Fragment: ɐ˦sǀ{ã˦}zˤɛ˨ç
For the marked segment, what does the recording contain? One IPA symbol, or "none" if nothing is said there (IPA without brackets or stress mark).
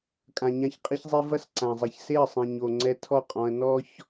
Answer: ã˨